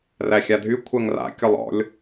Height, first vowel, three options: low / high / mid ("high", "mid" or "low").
low